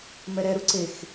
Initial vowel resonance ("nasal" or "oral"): oral